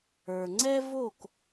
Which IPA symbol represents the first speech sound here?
ə˞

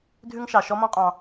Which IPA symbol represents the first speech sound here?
dʱ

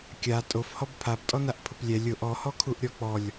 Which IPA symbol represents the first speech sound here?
kʲ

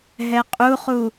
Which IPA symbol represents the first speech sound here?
ɦ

